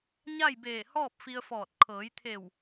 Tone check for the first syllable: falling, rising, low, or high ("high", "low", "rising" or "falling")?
falling